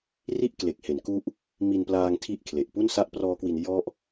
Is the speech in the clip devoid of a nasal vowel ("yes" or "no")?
yes